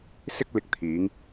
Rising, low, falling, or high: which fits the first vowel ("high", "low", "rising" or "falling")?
high